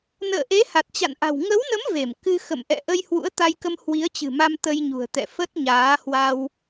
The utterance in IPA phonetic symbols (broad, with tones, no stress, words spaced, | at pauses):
nə̰ː˧˨ʔe˨˦ ha˨˩t̚t͡ɕa̰˧˨nʔa̤˨˩w ŋə˨˦wnə˨˦m ve˧˩m kɨ˧ xə̰˧˨mʔɛ̰˧˨ʔə˧j hwṵ˧˥ə̯t̪a˧jkə˧m hwi˨˦ə̯t͡ɕɨ̤˨˩ma˧m t̪ə˧jɲṳ˨˩ə̯t̪ɛ̰˧˨ fə˦˥t̚ɲaː˨˦hwa˧w